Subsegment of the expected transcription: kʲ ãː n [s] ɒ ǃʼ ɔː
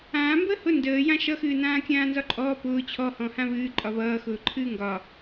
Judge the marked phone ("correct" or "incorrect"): incorrect